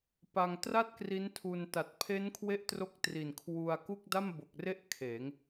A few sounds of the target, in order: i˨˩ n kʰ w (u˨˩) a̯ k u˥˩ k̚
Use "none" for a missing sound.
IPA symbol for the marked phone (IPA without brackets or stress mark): u˧